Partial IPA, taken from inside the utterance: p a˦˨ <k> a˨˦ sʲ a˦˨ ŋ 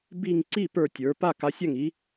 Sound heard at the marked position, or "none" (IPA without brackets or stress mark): k